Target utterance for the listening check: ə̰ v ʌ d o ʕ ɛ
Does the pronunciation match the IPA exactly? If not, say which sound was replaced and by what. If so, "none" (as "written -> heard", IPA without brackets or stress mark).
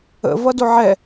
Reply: none